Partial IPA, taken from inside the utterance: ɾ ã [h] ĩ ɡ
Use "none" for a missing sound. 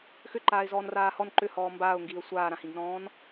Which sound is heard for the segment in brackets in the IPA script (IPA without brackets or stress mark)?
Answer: h